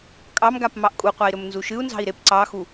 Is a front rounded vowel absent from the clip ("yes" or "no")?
yes